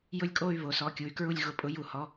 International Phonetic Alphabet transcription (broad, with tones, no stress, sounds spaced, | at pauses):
j ʊ˥˧ lʲ kʼ o˥˧ y̯ β o˩˧ s ɔ˩˧˩ kʲ u˩˧ y̯ k ɹ u˥˧ lʲ ɣ ʊ˨˥ pʼ ʊ˨˥ j u˧˩˧ h ɔ˩˧˩